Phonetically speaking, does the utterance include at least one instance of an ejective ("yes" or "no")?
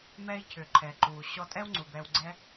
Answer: yes